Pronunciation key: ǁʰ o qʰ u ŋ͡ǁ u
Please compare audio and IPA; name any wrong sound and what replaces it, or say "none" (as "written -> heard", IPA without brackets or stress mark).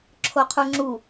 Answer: none